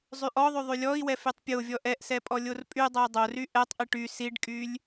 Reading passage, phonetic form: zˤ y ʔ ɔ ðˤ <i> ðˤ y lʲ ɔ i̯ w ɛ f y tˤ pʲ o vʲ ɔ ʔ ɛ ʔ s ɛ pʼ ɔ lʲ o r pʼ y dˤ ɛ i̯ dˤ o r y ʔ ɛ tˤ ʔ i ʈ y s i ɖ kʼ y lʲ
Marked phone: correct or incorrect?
incorrect: y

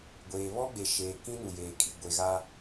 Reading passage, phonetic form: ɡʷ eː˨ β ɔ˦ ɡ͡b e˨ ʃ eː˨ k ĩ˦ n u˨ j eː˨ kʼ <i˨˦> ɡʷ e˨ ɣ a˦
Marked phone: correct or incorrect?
incorrect: i˨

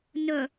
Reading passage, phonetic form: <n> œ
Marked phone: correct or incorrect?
correct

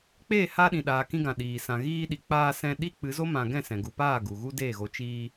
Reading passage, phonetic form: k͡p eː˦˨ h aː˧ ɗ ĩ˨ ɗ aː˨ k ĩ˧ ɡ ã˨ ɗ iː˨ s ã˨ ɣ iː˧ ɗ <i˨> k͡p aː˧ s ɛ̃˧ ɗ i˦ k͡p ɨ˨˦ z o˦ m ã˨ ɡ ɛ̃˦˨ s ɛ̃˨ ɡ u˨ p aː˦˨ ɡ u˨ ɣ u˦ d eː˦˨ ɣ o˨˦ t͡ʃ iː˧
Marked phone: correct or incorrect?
correct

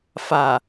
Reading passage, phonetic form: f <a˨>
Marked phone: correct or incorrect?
correct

